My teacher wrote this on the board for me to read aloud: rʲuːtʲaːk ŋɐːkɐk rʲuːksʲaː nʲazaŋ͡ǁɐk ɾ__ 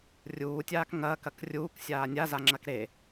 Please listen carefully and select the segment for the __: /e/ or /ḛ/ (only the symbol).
e